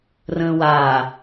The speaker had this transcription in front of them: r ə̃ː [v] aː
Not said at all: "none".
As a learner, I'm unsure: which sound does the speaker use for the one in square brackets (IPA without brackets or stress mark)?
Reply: w